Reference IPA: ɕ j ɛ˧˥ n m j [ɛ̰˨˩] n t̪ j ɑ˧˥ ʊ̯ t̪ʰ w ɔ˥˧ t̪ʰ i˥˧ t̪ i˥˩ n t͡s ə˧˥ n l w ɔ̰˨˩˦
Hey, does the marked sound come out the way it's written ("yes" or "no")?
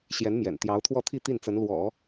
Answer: yes